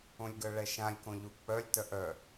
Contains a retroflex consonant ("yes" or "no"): yes